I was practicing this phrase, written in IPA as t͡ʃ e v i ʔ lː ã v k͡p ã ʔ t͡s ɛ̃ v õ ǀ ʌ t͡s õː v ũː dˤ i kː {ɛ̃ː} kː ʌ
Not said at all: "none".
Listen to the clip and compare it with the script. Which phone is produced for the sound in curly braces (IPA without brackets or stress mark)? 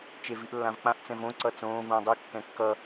ɛ̃